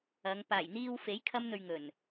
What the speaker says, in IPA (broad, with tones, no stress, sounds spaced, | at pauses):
ɐ˨˧ ŋ p aː˨˩ j n̪ iː˧ w f e˨˥ j kʰ ɐ˧ m n̪ ɵ˨ ɥ ŋ ɵ˨˩ n